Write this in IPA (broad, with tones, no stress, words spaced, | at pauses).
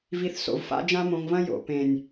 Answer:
vi˨θ so̰˨v fa̰˦d͡ʒã˦mõ˧ŋvɐ̃˦ jo̰˨ pẽ˨nʲ